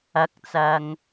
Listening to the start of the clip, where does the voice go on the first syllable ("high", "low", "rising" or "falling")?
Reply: rising